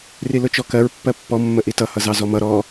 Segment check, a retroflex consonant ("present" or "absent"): absent